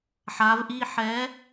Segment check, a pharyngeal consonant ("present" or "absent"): present